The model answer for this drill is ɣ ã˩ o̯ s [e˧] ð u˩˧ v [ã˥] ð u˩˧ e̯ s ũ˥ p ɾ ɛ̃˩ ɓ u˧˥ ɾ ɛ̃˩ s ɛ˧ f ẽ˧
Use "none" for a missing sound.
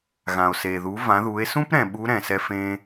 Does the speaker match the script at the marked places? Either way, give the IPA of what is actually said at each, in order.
e˩, ã˩˧

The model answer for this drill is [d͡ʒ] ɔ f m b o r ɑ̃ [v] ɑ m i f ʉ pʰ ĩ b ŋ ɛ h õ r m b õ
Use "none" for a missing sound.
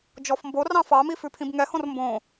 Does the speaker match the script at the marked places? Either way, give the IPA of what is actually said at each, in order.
d͡ʒ, f

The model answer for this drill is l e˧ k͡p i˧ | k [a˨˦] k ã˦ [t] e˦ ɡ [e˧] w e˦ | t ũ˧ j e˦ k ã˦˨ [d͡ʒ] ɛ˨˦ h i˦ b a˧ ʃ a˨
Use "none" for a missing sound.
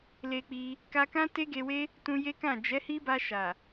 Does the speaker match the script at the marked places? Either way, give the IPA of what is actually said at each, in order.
a˧, t, e˧, d͡ʒ

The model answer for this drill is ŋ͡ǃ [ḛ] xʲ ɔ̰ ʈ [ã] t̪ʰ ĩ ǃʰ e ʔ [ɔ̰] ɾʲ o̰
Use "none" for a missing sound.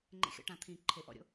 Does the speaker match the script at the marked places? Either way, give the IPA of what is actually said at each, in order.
ḛ, ã, ɔ̰

